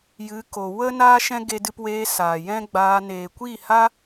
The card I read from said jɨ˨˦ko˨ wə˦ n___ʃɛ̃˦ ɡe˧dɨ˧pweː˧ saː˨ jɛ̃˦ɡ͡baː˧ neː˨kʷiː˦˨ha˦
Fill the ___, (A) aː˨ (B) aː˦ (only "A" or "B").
B